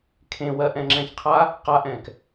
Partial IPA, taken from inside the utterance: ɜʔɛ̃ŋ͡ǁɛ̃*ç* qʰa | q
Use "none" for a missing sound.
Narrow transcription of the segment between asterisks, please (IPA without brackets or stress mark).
ç